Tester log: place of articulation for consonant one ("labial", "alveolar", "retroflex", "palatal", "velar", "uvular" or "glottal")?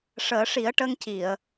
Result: retroflex